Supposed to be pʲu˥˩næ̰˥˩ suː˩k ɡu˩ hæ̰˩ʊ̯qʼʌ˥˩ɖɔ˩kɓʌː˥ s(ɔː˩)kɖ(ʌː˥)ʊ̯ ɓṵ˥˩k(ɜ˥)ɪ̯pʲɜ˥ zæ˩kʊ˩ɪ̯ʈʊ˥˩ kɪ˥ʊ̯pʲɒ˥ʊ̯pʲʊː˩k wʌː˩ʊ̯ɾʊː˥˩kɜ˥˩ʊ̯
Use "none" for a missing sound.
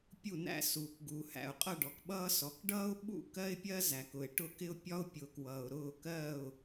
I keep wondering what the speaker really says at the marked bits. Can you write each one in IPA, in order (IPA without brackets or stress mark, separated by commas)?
ɔ˩, ʌː˥, ɜ˥